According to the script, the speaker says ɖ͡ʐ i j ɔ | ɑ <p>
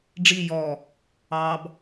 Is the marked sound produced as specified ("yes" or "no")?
no